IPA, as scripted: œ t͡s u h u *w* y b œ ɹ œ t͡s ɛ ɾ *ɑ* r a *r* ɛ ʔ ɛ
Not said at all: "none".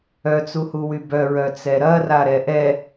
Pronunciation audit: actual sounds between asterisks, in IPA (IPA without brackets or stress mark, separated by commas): w, ɐ, ɾ